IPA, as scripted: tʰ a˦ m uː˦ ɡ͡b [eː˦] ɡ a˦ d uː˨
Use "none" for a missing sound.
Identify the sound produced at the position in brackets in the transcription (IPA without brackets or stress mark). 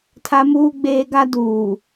eː˦